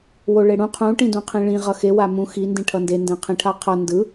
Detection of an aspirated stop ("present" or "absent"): present